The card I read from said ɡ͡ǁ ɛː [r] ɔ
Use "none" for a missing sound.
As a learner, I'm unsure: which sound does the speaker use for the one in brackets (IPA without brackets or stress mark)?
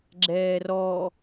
r